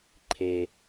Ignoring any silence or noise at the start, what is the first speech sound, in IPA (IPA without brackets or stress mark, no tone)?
ǃʰ